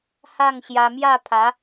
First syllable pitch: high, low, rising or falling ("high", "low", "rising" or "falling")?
falling